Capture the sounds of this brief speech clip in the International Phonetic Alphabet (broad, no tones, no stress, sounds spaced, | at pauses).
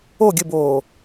o ɡʲ ɘ b oː